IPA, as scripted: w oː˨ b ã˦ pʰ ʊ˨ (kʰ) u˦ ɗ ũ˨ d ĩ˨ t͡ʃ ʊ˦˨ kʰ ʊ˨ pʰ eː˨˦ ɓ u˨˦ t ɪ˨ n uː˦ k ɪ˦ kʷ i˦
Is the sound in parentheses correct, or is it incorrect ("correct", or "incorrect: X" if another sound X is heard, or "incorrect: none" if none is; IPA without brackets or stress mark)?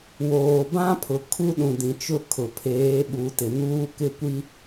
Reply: correct